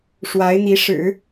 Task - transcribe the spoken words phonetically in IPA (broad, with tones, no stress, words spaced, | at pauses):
ʂwa˧˥ɪ̯n̪i˧˥ʂɻ̩˨˩˦